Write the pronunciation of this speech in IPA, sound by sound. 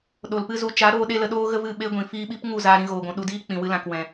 ɗ o˨ l p ɨ˦ z u˧ t͡ʃ a˨˦ ɾ oː˧ ɗ e˦ l ə˧ ɗ oː˦ ɣ ə˦ v ɨ˦˨ ɓ e˦ ɡʷ ĩ˨ f iː˦ ɓ i˦ p ŋ u˦˨ z aː˧ ɾ ĩ˧ ɣ oː˨ ɡʷ ũ˨ ɗ u˧ d iː˦ k͡p ĩ˨ w ɨ˧ l ã˨ k w ɛ̃˨

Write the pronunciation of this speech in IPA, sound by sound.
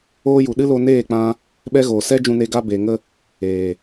oː˧ j u˨ ɗ ɨ˦ l o˧ n eː˦˨ k͡p ã˧ | ɓ ɛ˧ ɣ oː˨ s ɛ˦ d͡ʒ ũ˧ n e˧ ɡ a˧ b eː˨ ŋ ə˧ | eː˨

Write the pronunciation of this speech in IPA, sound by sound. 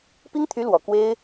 p i˥ ŋ t̪ʰ y˧˥ l w ɔ˨˩ k w e˥ ɪ̯

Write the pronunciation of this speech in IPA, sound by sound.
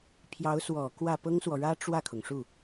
pʰ j ɑ˧˥ ʊ̯ s w ɔ˨˩ k w ä˥˩ p ɤ˥ ŋ s w ɔ˨ ɻ ä˥ ʈ͡ʂ w ä˥˩ kʰ ʊ˩ ŋ ʂ u˥˩

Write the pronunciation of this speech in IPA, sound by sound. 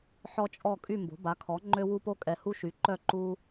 ħ ɔ˦ t͡ʃʼ ɔ˦˨ kʼ y˦˨ m b o̤˩˥ b a˩˥ kʰ ɔ˩˥ ŋ͡ǃ ø˦ w u˦ p o˦ kʼ ɛ˨ h u˦ ʃ y˩˥ ǃ œ˦˨ ǃ u˦

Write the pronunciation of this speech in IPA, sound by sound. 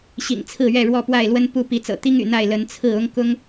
ɕ ḭ˨˩ ŋ t͡sʰ ɹ̩˥˨ ɥ ɛ˥˨ ɻ w ɔ˥˨ p w a˥˨ ɪ̯ l w ə˦ n p u˥˨ p i˨˦ t͡s ɤ̰˨˩ t̪ i˦ ŋ y̰˨˩ n̪ a˥˨ ɪ̯ l ə˨˦ n t͡sʰ ɹ̩˥˨ ʊ˦ ŋ k ʊ˦ ŋ

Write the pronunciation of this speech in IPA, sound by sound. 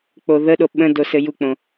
k͡p o ð ə ɗ o ɓ ə̃ d o s ɘ j u k͡p õ

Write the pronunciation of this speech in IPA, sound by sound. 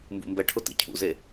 m b ṵ m b ɛ ʈʰ ʊ t ḭ cʰ ṵ z e

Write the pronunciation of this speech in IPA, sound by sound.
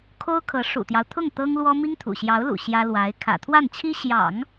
kʰ o˥ ʊ̯ kʰ ɤ˧˥ ʂ ṵ˨˩ t̪ j ɑ˦ ʊ̯ t̪ʰ ʊ˥˩ ŋ t̪ ɤ˥ ŋ l w ɔ˥ m i˥ ŋ t̪ʰ ṵ˨˩ ɕ j ɑ˧˥ ʊ̯ l ṵ˨˩ ɕ j ä˥ l w a˧˥ ɪ̯ kʰ ä̰˨˩ t̪ʰ w a˥˩ n t͡ɕʰ i˥ ɕ j ɑ̰˨˩˦ ŋ

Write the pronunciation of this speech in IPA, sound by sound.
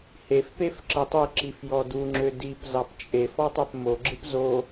h e f p e f ǁ ə tˤ e ǁ i f j ɔ d u ŋ͡ǁ ø d i p z ɑ p t͡ʃʼ e f ɔ tˤ ø p m o ɡ͡ǁ ɨ p z o

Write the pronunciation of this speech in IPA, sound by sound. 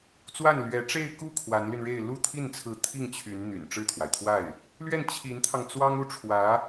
t͡s w a˥˩ n l ɥ ɛ˧˥ ʈ͡ʂ e˥˧ ɪ̯ k u˥˩ kʰ w a˧˥ n l y˧ n ɻ e˥˧ ɪ̯ l u˥˧ t̪ʰ i˥˩ n t͡sʰ ɹ̩˧˥ t̪ʰ i˥˩ ŋ t͡ɕʰ y˧˥ n n̪ y̰˨˩ n ʈ͡ʂ ɻ̩˥˩ t̪ʰ w a˩ ɪ̯ t̪ʰ w a˥˩ ɪ̯ | l ɥ ɛ˥˩ n t͡ɕʰ i˧˥ n t̪ʰ ɑ˧ ŋ t͡s w ɑ˥ ŋ u˥ ʈ͡ʂʰ w ä˧˥

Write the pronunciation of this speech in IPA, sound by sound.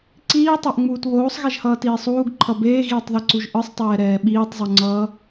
ǀ iː tˤ a ʔ ŋ͡m uː t β oː sˤ ɣ e ʒ h ʌː t iː sˤ uː ɡ ǃʰ ʌ b eː ɣ iː tˤ ð i ǀ u ʒ ʔ ɯ sˤ tˤ ɛː ɾ ɛː ɓ iː tˤ zˤ u ŋ͡ǀ ʌː

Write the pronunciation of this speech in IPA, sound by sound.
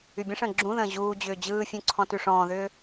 y bʲ ə̃ ʂ ə̃ː ɡ͡ǁ ũ ð ə̃ː ʑ uː d͡ʑ ʏː d͡ʑ ɯː fʲ ũ ǀʰ ɔ̃ t ʉ ʂ ɔ̃ː ð ʏː

